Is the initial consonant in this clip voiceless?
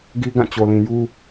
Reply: no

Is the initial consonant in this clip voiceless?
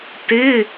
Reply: yes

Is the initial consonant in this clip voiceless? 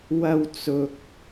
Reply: no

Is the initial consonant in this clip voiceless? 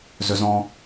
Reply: no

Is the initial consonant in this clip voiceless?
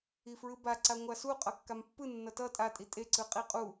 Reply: yes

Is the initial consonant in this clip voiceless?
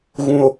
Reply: no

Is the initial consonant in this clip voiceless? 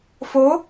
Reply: yes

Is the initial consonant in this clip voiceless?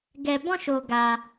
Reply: no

